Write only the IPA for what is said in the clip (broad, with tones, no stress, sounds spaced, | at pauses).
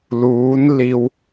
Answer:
l uː˧˥ n l i˧ w